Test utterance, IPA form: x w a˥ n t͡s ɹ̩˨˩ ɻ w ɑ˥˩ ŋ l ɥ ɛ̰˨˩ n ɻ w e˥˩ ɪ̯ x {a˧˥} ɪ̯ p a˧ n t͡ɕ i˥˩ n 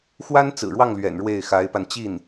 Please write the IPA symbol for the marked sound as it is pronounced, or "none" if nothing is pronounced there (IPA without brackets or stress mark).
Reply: a˧˥